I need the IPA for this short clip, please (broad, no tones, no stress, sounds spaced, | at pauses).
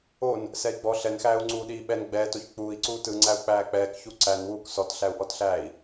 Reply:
o n | s ɛ i̯ ɡ͡b ɔ ɬ ɛ n x æː u̯ ŋ͡ǀ uː ɗ iː ɓ ɛ n ɡ͡b ɛː t o ç k͡p uː i̯ ǀ uː t ɯ ŋ͡ǀ æ u̯ k͡p æː k͡p ɛː k ç u ǀ æ n w uː k s ɔ t ɬ æ u̯ ʔ ɔ t ɬ æː i̯